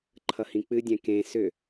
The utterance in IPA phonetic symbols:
ǃʰʌhĩk͡pɨdʲɛ̃ kẽ sʏ

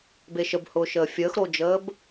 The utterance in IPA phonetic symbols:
beʃəbhʊːʃəː fʲəːxɾod͡ʒəːb

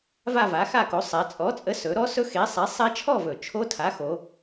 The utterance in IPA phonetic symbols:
va˥˧va˨˥xa˥˧ko˨˥ sˤɛ˩˧t͡sʼɔ˨˥ t͡sʼə˨˥sɵ˩˧ ɾɔ˦˥sɵ˦˥ xe˨˥ sˤɛ˨˥sˤɛ˦˥t͡ʃʰɔ˥˧vɵ˨˩ t͡ʃʰo˦˥tʰa˨˥ xo˩˧

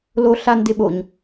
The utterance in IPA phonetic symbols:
loɬandɪɓoɲ

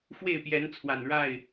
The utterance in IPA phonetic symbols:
fwe˥˨ɪ̯pjɛ˨˦nt͡sʰwa˨˩n ɻa˥˨ɪ̯

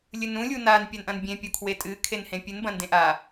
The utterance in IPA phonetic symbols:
lʲɨnũ lʲunan pʲanʔɐ̃nbʲẽ pʲokʰwetʼɨ kʰenhẽpʲɨn bɐ̃ndẽʔa

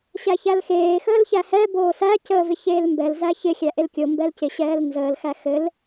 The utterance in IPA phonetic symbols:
ɕæçælxeː xəːlçæhɛː boːsæ cəːvɪçeːlmbɛl zæçɪ xʲæʔelkʲo mbɛlcɪ ɕɛːlnzəːl xæxɘl

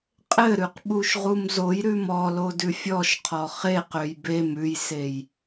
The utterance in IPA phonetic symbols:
qʼɘɾʉq ɓuʃʁumzojɾʉm ɔlo dʉfʲɔʃqʰɔ χeqøj bem ʉjsej

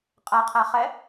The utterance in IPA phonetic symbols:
qʼaqʰaχɛ

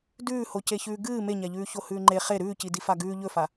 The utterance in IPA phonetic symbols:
dʉːhoceçʉː ɡɨː meɲaʎʉː çohʉːŋ͡ǃe χe ɾʉːcidi faɡʉː ʎɵfa

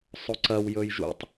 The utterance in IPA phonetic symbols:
sˤoǀɐw jɵjʒṵtˤ

